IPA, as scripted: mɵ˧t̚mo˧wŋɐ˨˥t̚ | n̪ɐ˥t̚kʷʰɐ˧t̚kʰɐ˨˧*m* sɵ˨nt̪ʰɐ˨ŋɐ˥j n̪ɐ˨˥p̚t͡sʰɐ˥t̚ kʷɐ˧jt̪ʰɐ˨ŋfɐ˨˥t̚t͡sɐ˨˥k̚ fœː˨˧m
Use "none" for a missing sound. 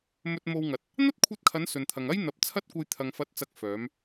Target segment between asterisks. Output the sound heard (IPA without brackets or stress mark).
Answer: n